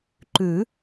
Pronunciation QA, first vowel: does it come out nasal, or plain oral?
oral